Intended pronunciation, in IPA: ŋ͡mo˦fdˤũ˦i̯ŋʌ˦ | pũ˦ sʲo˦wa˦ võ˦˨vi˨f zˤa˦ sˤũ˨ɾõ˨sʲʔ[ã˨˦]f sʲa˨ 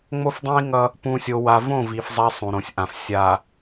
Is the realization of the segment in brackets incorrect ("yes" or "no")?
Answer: yes